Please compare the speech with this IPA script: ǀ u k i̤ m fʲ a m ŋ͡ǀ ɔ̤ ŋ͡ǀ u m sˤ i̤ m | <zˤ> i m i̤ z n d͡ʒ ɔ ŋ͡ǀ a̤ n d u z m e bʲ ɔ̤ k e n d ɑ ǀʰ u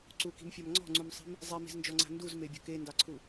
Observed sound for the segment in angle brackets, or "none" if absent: zˤ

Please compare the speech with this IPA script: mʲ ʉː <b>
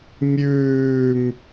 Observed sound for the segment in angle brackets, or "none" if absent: m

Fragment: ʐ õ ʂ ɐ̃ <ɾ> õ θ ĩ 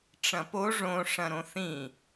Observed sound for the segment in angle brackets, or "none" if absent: ɾ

